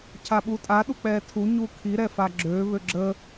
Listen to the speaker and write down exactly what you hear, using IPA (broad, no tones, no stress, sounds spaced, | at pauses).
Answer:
cʰ a ɓ u tʼ a ɗ u k͡p ɛ tʰ u ɲ u kʰ i ɾ ɛ f a ɡ͡ǁ ø β ø ɡ͡ǁ ə